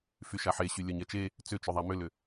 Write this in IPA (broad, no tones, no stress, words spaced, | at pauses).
fyʃaħeɕy lʲœɲɛt͡ʃe | t͡sʏt͡ʃʏ ðˤamʏlʏ